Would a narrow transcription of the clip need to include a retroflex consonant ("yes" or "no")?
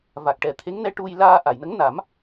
yes